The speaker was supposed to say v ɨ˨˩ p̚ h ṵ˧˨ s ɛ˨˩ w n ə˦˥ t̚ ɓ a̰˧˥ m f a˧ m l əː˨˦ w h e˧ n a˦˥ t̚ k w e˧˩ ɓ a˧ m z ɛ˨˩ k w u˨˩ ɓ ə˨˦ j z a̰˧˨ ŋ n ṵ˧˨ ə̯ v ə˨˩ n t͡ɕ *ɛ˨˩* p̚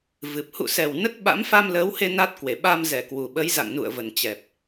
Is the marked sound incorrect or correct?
correct